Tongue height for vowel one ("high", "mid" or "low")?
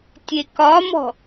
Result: mid